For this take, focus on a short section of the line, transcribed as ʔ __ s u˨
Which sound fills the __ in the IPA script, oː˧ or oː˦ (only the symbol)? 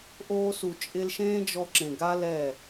oː˧